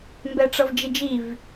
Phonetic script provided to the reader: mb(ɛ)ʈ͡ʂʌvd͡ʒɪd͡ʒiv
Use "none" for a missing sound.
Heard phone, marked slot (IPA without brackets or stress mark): ɛ